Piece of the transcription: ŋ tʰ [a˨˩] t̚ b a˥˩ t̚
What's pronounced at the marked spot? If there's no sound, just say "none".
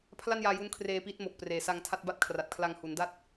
a˥˩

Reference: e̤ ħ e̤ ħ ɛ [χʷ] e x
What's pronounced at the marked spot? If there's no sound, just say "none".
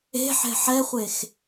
χʷ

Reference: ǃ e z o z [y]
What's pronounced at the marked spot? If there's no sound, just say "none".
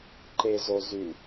y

